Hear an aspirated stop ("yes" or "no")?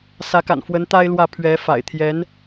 yes